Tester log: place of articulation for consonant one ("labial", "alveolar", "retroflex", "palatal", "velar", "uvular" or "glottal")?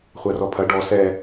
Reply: uvular